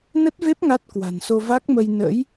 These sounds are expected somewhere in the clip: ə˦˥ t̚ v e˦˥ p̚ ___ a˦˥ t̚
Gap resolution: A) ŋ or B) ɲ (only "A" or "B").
A